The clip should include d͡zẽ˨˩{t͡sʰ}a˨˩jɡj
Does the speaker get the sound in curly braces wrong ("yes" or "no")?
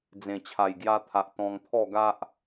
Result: yes